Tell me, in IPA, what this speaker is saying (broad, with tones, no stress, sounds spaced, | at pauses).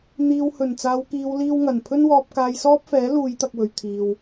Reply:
n̪ iː˨ w h ɵ˨˩ n t͡s aː˨˧ w k iː˨˧ w l iː˧ w ŋ ɐ˨˩ n pʰ ɵ˥ n w ɔː˧ p̚ k aː˧ j s ɔː˥ p̚ f ɛː˨˥ l uː˨˧ j t̪ ɐ˨ k̚ w ɵ˨ ɥ t̪ʰ iː˨ w